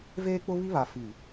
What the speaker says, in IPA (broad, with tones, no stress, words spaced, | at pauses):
veː˦k͡pʊ˦ βi˦βa˨ fi˨